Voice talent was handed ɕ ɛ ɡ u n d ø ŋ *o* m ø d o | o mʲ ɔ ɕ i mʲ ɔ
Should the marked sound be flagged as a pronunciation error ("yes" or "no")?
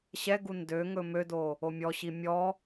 yes